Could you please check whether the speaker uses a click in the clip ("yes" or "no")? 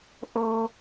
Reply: no